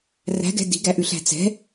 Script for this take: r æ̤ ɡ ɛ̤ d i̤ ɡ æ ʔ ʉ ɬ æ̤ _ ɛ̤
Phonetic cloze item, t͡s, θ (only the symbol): t͡s